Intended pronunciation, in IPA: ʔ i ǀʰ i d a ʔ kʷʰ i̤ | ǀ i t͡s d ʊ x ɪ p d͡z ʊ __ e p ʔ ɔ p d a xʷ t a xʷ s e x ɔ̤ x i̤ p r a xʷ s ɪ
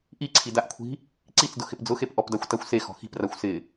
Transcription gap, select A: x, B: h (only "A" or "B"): A